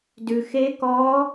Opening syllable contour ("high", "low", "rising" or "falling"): low